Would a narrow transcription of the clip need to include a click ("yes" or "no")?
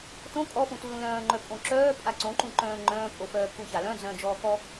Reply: yes